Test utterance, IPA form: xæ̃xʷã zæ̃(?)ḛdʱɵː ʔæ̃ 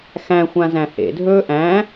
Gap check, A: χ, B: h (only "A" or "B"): B